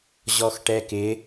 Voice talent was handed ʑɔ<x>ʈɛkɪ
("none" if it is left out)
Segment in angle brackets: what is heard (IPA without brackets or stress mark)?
x